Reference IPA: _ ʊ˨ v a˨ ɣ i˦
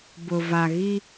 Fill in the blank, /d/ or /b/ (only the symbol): b